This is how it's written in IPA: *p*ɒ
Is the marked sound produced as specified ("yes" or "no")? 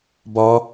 no